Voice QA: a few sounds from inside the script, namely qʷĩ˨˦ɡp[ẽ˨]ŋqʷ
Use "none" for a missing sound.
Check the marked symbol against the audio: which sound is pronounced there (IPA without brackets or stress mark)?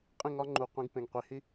ẽ˨